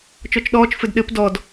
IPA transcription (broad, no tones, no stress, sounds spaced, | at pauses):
t͡ʃ ɔ t͡ʃ ɗ ɔː t͡ʃ f ɘ d ɗ ɘ p d ɔ d